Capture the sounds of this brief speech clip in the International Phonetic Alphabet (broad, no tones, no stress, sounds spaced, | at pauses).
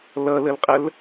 l ʌ l ə l qʼ ə l